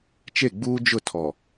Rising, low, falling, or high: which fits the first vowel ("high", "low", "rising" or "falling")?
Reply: falling